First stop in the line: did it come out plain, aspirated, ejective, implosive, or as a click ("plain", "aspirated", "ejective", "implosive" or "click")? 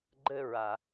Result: click